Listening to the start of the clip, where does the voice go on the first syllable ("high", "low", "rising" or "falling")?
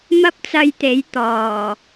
high